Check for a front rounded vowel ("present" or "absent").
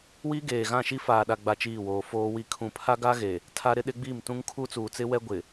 absent